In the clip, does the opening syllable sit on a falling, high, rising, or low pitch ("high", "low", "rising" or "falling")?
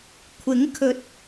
rising